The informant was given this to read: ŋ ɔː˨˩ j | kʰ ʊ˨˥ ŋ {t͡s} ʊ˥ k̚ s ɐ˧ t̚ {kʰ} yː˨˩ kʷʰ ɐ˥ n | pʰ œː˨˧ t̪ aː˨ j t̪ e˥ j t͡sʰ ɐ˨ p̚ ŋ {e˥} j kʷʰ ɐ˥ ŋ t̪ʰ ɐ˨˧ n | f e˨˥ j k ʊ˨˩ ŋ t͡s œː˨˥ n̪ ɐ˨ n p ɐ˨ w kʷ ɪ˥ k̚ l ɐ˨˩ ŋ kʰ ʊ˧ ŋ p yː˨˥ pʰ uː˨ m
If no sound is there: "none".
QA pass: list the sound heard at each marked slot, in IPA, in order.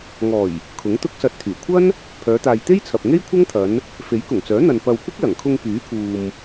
t̪, t̪ʰ, e˥

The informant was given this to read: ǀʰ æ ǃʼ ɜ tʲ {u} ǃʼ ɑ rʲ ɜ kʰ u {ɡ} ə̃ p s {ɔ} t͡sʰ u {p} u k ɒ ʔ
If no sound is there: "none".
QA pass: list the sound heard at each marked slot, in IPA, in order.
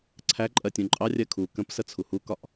ũ, k, ə, h

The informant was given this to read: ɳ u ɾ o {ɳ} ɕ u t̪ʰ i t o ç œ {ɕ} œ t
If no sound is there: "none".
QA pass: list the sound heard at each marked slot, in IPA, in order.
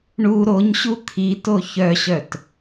ɲ, ɕ

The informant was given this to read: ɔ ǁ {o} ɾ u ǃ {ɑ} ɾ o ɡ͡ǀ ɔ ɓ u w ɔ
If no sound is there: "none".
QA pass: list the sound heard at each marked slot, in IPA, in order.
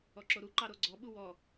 o, ɑ

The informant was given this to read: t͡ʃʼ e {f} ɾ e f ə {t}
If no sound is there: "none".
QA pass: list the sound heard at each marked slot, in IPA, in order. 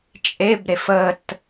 b, t

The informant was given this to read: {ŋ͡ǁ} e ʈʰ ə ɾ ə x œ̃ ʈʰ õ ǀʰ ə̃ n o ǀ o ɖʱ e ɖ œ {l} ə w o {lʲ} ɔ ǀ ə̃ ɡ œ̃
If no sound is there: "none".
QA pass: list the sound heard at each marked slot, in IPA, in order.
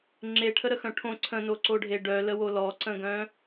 ŋ͡ǁ, l, l

